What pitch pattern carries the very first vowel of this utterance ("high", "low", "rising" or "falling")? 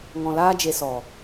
low